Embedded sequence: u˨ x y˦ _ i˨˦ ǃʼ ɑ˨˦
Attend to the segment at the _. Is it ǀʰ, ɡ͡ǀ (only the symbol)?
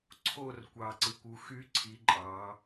ǀʰ